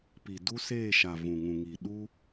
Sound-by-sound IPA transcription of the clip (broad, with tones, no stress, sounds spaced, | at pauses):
p i˨ d u˦ s eː˦˨ ʃ a˨ v ũ˨ ŋ ũ˨ ŋ i˨ ɗ u˦